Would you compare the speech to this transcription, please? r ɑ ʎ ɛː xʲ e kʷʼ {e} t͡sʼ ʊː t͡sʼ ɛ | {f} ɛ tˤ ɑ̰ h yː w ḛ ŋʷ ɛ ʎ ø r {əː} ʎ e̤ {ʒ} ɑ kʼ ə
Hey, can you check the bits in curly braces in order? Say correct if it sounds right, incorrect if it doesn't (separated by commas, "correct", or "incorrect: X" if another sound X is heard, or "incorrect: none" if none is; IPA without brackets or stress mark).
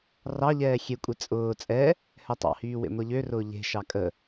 correct, incorrect: h, incorrect: ʊː, incorrect: ʃ